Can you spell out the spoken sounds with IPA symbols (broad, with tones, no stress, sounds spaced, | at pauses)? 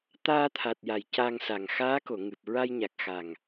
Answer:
t̪ aː˧ t̪ʰ a˨˩ t̚ j a˨˩˨ j c a˧ ŋ s a˨˩ ŋ x aː˧˥ k o˨˩˨ ŋ ɨ˨˩ p̚ ɹ a˧ j ɲ a˨˩ k̚ x a˨˩ ŋ